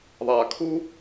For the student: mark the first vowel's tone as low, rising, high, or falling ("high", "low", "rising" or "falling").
low